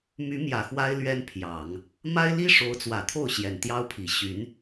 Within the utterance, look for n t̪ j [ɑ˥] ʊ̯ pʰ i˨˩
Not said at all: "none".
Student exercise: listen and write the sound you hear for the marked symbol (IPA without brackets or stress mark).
ɑ˥